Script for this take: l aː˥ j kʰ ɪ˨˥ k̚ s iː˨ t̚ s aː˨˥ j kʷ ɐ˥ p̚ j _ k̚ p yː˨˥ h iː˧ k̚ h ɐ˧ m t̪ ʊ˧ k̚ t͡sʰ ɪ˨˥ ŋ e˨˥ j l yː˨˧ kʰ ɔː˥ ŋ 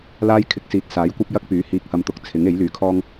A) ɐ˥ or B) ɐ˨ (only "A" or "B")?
A